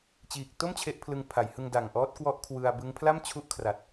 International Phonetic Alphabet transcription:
t͡ɕ iː˨˩ k̚ t o˥˩ m t͡ɕʰ e˦˥ ʔ pʰ l ɯ˧ ŋ pʰ a˩˦ j h ɯ˧ ŋ d a˨˩ ŋ ʔ ɔː˦˥ t̚ k w ɔ˦˥ ʔ kʰ w ɯ˧ a̯ b ɯ˦˥ ŋ pʰ l a˥˩ m t͡ɕʰ u˦˥ ʔ kʰ r a˨˩ t̚

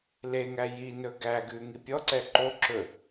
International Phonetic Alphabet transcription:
l e ŋ æ j i n ɵ ɡ æ ɡ ʉ ŋ i pʲ ɔ ǀ ɛ ǃ o ǁ ɵ

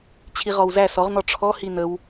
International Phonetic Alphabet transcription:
t͡ɕʰ i ʁ ɔ w z æ s ɔ ʁ n ɔ ʈ͡ʂʰ ɔ h i n ə w

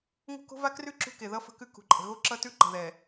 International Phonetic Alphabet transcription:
ŋ o̤˦ k o̤˦ v a˦ k r ʉ˦˨ ǁ ṳ˦ k e˨ ð ʌ˦ f ə̤˦ k ʉ˦ k ṳ˨ ǃʼ ə̤˨ ɣ o˦ ǁ ʌ˦ t ʉ˦ ǃ ə̤˨ ð ɛ˨

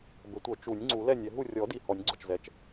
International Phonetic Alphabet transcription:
b ə˨˩˦ tʷ œ˨˩˦ t͡ʃ u˨˩˦ nʲ ŋ͡ǀ u˨˩˦ l ɛ˥˨ nʲ ɛ˨˩˦ ɦ u˥˨ rʲ ɔ˨˩˦ d i˨˩ h ɔ˨˩˦ nʲ ɡ͡ǀ ɔ˨˩ t͡ʃ z ɛ˨˩ t͡ʃ

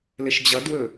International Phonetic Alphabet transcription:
l ɘ ʃ d͡ʑ ʌ d w ɵ

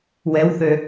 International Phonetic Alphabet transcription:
w ɛ w θ ø

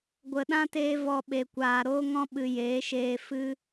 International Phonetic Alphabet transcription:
ɡʷ ə˨ ɗ ã˦ t eː˧ v ɔ˨ ɓ e˨ kʷ aː˨ ɾ oː˧ ŋ ɔ̃˧ ɓ ɨ˨ j eː˨˦ ʃ eː˧ f ɨ˦

